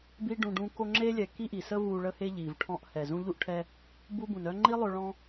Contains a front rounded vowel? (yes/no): yes